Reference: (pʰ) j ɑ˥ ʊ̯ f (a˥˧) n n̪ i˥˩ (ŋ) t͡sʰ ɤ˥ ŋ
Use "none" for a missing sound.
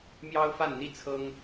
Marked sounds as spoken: m, a˥˧, none

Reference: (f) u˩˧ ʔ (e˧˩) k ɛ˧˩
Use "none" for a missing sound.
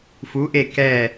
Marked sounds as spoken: f, e˧˩

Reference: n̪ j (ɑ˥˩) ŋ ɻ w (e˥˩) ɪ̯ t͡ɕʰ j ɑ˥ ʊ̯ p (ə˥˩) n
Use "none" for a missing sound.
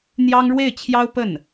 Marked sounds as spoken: ɑ˥, e˥˩, ə˥˩

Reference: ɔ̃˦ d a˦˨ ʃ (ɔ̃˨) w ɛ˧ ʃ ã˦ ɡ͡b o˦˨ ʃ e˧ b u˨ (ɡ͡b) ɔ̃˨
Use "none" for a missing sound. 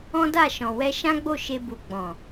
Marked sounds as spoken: ɔ̃˨, ɡ͡b

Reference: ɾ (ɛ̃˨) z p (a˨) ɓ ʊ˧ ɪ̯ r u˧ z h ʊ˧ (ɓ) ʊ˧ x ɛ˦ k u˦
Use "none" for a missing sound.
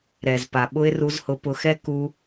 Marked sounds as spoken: ɛ˨, a˨, p

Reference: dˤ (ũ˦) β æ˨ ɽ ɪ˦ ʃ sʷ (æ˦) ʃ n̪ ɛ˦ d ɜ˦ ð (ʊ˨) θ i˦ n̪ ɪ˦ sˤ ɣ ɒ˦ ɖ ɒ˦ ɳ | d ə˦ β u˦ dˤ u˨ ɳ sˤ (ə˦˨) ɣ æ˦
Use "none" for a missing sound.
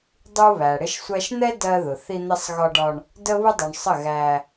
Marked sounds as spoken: u˦, æ˦, ʊ˨, ə˦˨

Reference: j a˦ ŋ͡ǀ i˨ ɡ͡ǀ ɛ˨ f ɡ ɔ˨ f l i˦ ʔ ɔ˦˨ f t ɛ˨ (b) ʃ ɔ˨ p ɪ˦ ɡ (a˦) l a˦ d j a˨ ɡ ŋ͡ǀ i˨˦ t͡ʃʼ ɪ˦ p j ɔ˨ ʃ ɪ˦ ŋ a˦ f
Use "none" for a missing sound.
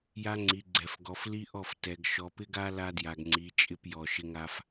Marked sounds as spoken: ɡ, a˦

